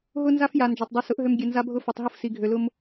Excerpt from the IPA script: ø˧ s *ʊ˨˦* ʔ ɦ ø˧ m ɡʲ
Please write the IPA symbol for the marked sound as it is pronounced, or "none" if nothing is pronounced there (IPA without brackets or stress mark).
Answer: ʊ˨˦